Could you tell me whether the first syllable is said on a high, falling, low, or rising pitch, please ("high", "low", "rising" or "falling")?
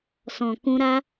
low